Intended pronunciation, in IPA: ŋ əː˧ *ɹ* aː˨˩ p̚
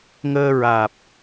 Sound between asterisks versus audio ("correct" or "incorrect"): correct